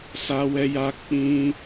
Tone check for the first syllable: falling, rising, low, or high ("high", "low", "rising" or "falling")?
high